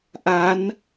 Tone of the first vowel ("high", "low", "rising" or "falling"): rising